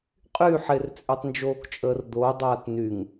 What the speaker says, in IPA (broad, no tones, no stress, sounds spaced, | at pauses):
qʼ y ħ e r t͡sʼ ø tˤ n d͡ʒ oː k t͡ʃʼ əː r d̪ oː dˤ aː t n y ŋ